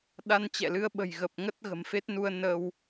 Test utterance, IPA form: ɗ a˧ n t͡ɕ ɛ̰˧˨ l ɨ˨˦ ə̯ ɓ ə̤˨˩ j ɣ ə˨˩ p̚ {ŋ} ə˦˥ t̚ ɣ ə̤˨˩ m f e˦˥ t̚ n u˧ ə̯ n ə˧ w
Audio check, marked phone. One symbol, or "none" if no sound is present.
ŋ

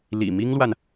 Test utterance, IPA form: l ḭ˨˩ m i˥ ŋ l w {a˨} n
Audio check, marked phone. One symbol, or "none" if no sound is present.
a˨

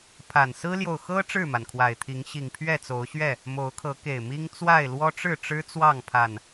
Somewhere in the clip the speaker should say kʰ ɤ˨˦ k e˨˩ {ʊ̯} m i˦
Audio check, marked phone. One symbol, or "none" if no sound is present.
ɪ̯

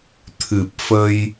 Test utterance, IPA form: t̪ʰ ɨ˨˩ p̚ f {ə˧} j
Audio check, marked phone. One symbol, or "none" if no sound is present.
ə˧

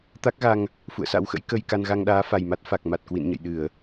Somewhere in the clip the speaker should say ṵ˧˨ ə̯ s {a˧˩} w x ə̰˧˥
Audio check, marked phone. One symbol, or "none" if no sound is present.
a̰˧˥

